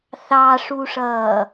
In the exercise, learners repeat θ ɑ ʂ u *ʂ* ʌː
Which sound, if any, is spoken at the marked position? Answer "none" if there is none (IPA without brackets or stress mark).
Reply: ʂ